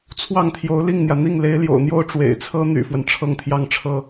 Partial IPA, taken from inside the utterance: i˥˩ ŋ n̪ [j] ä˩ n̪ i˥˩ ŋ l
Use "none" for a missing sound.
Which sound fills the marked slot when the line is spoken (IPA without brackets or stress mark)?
j